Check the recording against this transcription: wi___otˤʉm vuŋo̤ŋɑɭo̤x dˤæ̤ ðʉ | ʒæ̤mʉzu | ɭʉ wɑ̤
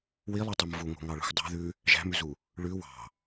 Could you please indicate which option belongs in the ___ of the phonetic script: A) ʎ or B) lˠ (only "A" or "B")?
B